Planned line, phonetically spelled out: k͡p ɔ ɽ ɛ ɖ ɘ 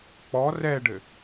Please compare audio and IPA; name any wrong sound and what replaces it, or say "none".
ɽ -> r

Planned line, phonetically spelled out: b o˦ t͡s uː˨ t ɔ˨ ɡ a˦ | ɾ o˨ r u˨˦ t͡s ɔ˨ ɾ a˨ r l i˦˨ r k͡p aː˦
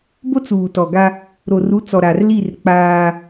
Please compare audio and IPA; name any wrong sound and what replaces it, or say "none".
none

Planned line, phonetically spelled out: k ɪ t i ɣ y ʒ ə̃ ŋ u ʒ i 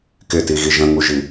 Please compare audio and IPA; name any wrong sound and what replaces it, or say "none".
y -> i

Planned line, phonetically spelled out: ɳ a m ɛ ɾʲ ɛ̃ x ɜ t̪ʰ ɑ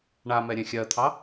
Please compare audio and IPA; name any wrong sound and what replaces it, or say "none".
x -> xʲ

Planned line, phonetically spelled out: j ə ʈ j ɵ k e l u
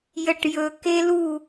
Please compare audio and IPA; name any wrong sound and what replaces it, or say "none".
none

